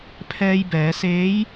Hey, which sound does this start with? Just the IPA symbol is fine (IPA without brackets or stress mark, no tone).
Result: pʰ